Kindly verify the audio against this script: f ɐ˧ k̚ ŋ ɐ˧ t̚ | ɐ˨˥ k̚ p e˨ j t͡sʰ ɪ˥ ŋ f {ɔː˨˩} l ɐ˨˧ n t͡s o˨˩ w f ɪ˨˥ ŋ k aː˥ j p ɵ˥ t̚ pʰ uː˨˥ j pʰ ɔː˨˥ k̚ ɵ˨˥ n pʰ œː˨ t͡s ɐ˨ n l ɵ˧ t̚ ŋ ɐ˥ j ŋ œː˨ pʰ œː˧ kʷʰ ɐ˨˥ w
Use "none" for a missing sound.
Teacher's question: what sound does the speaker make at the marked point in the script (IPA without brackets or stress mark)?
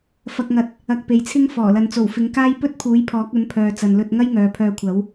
ɔː˨˩